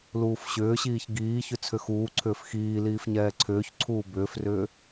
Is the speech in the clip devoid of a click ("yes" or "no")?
no